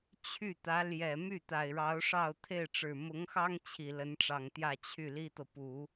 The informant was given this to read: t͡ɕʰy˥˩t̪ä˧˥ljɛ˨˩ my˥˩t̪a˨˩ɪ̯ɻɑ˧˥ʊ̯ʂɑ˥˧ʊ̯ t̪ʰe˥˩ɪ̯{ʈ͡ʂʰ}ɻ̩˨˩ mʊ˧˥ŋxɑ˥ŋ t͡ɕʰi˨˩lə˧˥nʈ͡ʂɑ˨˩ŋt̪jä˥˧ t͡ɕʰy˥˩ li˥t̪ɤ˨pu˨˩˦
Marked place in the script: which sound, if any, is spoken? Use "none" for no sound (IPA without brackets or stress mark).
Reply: ʈ͡ʂ